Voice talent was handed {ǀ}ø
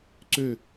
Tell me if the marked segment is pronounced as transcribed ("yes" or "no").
yes